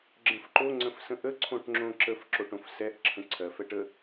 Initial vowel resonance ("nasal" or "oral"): nasal